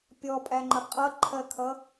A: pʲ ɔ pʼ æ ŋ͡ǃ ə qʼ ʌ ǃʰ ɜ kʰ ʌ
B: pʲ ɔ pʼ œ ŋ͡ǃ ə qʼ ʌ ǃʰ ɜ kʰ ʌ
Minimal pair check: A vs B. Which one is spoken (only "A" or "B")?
A